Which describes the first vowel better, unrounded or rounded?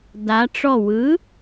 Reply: unrounded